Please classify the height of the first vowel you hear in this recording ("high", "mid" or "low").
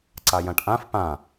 low